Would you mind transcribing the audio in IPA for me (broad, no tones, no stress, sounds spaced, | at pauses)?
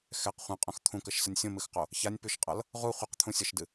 x ɛ q χʷ ɛ̃ qʼ õ x t̪ʰ ũ k ə ʃ s ə nʲ sʲ õ m ɨ x q o | ç a nʲ p ʉ ʃ qʼ ʌ l | ʁ u χʷ ʌ q t̪ʰ ũ sʲ ʌ ʃ d ɨ